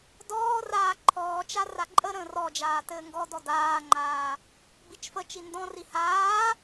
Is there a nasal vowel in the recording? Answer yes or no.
yes